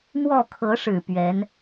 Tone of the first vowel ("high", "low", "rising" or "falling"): falling